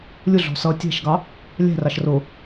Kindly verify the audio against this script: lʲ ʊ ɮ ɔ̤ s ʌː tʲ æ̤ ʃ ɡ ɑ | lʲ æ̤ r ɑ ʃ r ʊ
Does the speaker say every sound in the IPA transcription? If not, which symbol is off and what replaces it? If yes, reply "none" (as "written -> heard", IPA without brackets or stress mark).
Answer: none